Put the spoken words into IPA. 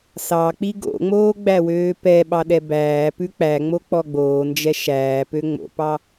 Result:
s ɑ k͡p i ɡ o̰ ŋ͡m oː ɡ͡b æ w øː p ɛ ɓ ɑ ɗ ɛ b æː p ʉ k͡p æ ŋ͡m o k͡p ɔ ɡ͡b oː n d͡ʒ ɛ ʃ æː p ø ŋ͡m o̰ p ɑ

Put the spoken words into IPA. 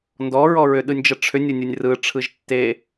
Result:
n d ɔ ɹ ɔ ɹ ʏ ɗ ɯ nʲ d͡ʒ ə ʈ͡ʂʰ ʏ nʲ ɯ nʲ ɯ nʲ r ɯ ʈ͡ʂʰ ɯ ʒ tː e

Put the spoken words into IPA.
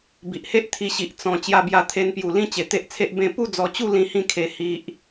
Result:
b i˨ ʔ h e˦ ʔ t̪ʰ i˧ ɕ i˨ ʔ t͡s ɔ̃˧ t͡ɕ j a˧ b j a˧ t̪ʰ e˧ n p j u˨˩ l ĩ˦ t͡ɕ e˨˩ t̪ e˦ ʔ t͡sʰ e˦ ʔ b ẽ˥˧ p u˥˧ d͡z ɔ˧ t͡ɕ u˥˧ l ĩ˦ h ĩ˥˧ kʰ e˧ h i˨ ʔ

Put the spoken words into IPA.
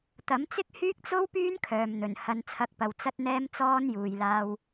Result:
t̪ ɐ˨˥ m t͡s ɪ˥ k̚ h yː˥ k̚ t͡s o˥ w p yː˥ n kʰ œː˨ m n̪ ɵ˨˩ n h ɐ˨˧ n t͡sʰ ɐ˨˥ k̚ p ɐ˨ w t͡s ɐ˧ t̚ n̪ ɛː˧ m t͡s ɔː˧ n j uː˨ j l aː˧ w

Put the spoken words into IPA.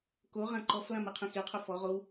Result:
k o ʁ ã ǃ ɔ f l ã m ɯ qʰ ẽ x e qʰ o f ɔ ʁ o w

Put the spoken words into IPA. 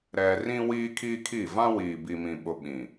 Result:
ɾ ɛ˨ r ĩ˦ w iː˦ kʰ iː˦ kʰ i˦˨ v ã˦ w iː˨ b i˨ m ĩ˨ ɓ ʊ˨ ɓ ĩ˨

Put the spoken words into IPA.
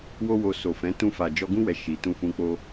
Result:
w o˦ w o˧ s o˨ f ɛ̃˨˦ t ũ˧ f a˨ d͡ʒ ɔ˧ ɡ ũ˦ w ɛ˧ ʃ i˨ t ũ˧ f ũ˧ k͡p o˦

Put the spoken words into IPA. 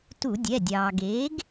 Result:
t u˧˩˧ dʲ ɛ˩˧˩ dʲ ɑː˩ ɡ eː˩˥ ɡ

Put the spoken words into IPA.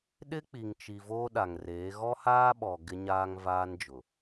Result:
ɗ ɪ˦ k͡p i˨ ŋ t͡ʃ i˨ v oː˦ ɗ a˨ ŋ r eː˨˦ ɣ ɔ˦ h aː˦ ɓ ɔ˨ ɡ ɪ˦ ɲ aː˦ ŋ v aː˦ n d͡ʒ ʊ˨

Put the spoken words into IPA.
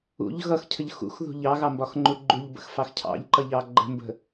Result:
ṵ ʎ ɣ ʌ x cʰ ə ʎ x ṵ x ð ṳ ʎ ɑ ɣ ɑ m b ɒ x ŋ͡ǃ u ɡ͡ǃ u ʎ b ə̰ x f ɑ x cʰ ɑ̰ ʎ ǃ ʌ ʎ ɑ ɡ͡ǃ ə̤ m b ə̤

